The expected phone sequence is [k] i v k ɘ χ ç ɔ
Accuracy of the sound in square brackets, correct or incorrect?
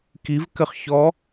correct